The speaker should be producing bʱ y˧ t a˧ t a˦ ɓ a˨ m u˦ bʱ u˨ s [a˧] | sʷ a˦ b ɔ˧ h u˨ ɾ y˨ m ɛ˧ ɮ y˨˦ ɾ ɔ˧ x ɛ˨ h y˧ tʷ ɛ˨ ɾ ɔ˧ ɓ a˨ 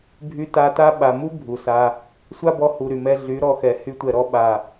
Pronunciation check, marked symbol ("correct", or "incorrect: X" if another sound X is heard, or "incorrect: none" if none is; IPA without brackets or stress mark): correct